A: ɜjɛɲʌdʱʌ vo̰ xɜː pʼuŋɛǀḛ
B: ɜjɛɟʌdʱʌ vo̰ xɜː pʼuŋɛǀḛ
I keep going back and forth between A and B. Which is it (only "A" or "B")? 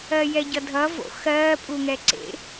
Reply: B